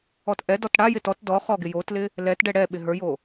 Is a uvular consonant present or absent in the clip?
present